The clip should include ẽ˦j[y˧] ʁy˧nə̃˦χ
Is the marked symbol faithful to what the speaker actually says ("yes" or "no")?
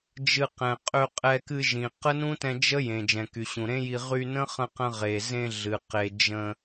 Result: no